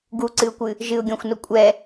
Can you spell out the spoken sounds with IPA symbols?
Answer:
ɡ u ǀ ɨ ʊ̯ kʷ ɨ | ʒ ɨ ʊ̯ ɡʲ ɔ̃ xʷ n o kʷʼ ɛ

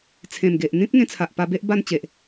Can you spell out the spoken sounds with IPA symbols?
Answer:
t͡sʰ ẽ˨˩ m ɡ e˨ ʔ n̪ ĩ˦ p̚ ŋ ẽ˧ t͡sʰ a˨ ʔ p a˧ b e˦ ʔ b a˥˧ n t͡ɕ e˨ ʔ

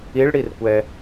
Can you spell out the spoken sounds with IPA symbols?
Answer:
i ɭ ɽ i r kʷ ɛ

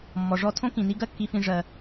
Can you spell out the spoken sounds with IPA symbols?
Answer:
mː ɔ˩ ʐ ɔ˥ tʰ õ˥ k ĩ˩ n i˥ ɡ ɜ˥ kː i˧ f ĩ˧ ʐ ɜ˧

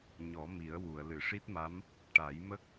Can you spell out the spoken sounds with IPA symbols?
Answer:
ɲ ɔ˨˩˦ m i˨˩˦ ə̯ w u˨˩˨ ə̯ l ɨ˨˩˨ ʂ i˦˥ t̚ m a˧˥ m | ʈ a˨˩˦ j m ə˦˥ k̚

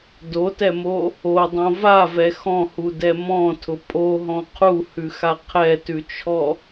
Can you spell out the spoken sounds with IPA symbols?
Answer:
d o t ɛ m o | o dˤ õ v a v ɛ x ɔ̃ h u d ɛ m ɔ̃ tʰ ʊ pʼ o ɦ ɔ̃ qʰ u h ʉ x a qʰ ɛ t ʉ t͡ʃʰ ɔ

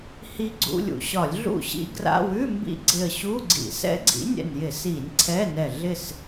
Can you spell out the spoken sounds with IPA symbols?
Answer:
h i˦˥ ɡ͡ǀ ṵ˧˥˧ lʲ ṵ˧˩ ɕ ɒ˧˩˧ lʲ ɮ ṵ˥˩ ɕ ḭ˦˥ ɡ r a̰˧˥˧ w ʉ˧˥˧ m b ḭ˦˥ ɡ͡ǀ ɪ˧˩ ə̯ ɕ u˧˥˧ ɡ͡ǀ ḭ˧˩˧ s ɛ̰˦˥ ɡ͡ǀ ḭ˨˥ nʲ ɛ̰˧˩ n j ɪ˧˩˧ s i˧˩˧ nʲ ǀʰ ɛ˧˥˧ n ɛ˧˩ ɮ ɪ˥˩ s

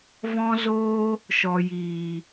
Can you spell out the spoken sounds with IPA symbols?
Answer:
v ɔ̃˦ z oː˦ | ʃ ɔ˨ j iː˨

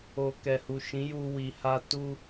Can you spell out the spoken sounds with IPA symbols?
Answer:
o˨ k ɛ˨ h u˨ ʃ ĩ˨˦ j u˦ w i˧ h a˦ t u˦

